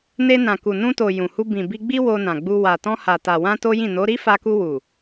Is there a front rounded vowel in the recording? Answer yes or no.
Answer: no